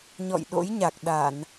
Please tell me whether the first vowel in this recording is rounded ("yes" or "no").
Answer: yes